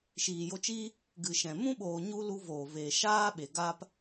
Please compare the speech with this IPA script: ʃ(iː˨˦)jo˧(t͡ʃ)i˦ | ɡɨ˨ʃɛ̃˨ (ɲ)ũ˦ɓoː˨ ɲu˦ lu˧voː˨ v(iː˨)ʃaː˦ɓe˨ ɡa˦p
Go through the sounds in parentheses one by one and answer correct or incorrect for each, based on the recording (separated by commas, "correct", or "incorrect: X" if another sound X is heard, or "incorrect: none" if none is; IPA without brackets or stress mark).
incorrect: iː˨, correct, incorrect: m, incorrect: eː˨